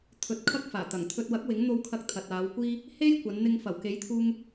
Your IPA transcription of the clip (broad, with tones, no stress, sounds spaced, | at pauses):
t̪ʰ ɵ˨ t̚ kʰ ɐ˥ k̚ f aː˨˩ t̪ ɐ˨˩ ŋ t̪ʰ ɵ˧ t̚ w ɐ˨˥ k̚ w ɪ˨˥ ŋ n̪ o˨ w kʰ ɐ˨ k̚ t̪ʰ ɐ˨ t̚ aː˨˧ w kʷ iː˥ | h e˥ j kʷ ɐ˨˧ n n̪ ɪ˧ ŋ f ɐ˨˩ w k e˨˥ j t̪ʰ uː˧ ŋ